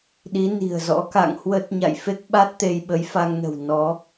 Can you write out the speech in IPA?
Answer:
ɗi˨˦ni̤˨˩ə̯ zɔ̰˧˥ka̰˧˨ŋhwə˦˥t̚ ɲa̰˧˨j fe˦˥k̚ɓa˦˥t̚ t̪e˧jɓə˨˦jfa˧ŋnə̤˨˩w nɔ˨˦

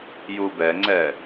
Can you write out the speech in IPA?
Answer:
jubɛŋ͡ǀɛ

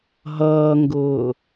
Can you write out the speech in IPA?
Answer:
ɦʌːŋɡʊː

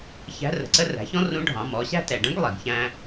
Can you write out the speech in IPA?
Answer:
çæ̤˧˥rə̤˩ǀə˥ ræ̤˩˧çɔ̃˥ rũ˧˥ɖʱɑ̃˩˧mɔ˩˧ɕæ̤˥ tɛ˩ɖə̃˧˥ɡ lˠi˩ɡçæ̃˧

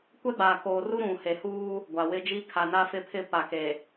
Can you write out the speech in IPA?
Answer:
kʷɛ˦ɡ͡baː˨koː˨ru˦ ɾũ˨he˨huː˦ | ɡʷa˨wɪ˦ d͡ʒi˦ kʰa˨na˦fɪ˦pʰɪ˦˨ pa˨ke˨

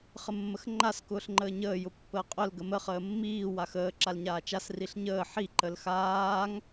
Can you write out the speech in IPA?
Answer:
χəmːəxŋ͡ǃas kʊːɬŋ͡ǃəːɲəː jʊpːəːqʼʊl ɡəmə χəːmːiː waxəː ǁalɲaːt͡ʃas riɬɲəː ħi ǃəlxaːŋ

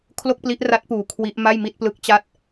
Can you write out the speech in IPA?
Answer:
kʰlo˥˩k̚pli˦˥ʔra˦˥t̚puː˨˩ kʰwi˦˥ʔ ma˥˩jmi˥˩t̚plɯ˦˥k̚ t͡ɕa˥˩t̚

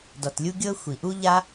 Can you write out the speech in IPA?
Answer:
dɔ˩tlʲu˥ ɡʲɤ˥ xʷi˩ʔu˥ ʎa˥

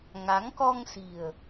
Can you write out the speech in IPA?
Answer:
ŋa˨˦ŋkɔ˧ŋ si̤˨˩ə̯

